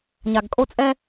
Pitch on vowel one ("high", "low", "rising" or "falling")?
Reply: low